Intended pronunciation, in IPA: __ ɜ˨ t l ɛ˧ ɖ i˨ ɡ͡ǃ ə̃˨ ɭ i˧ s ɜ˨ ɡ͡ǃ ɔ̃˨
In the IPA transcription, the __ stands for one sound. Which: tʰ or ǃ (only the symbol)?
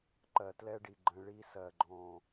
ǃ